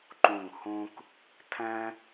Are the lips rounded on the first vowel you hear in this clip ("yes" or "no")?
yes